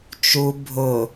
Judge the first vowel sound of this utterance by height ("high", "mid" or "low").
high